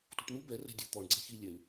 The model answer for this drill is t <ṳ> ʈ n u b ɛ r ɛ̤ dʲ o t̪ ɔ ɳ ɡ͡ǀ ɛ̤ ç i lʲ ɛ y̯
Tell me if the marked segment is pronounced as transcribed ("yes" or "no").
yes